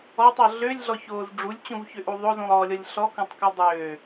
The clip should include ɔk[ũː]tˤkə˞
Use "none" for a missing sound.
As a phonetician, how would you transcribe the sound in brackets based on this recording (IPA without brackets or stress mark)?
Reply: ũ